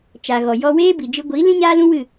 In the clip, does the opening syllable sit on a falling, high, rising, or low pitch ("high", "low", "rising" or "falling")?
low